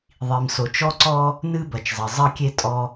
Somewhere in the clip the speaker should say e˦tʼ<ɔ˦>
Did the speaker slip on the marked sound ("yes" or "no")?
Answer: no